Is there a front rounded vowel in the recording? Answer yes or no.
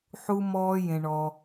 no